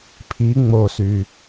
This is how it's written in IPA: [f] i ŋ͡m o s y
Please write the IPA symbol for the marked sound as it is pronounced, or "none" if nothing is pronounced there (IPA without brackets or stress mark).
pʰ